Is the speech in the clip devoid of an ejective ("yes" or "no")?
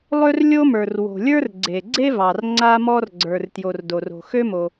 yes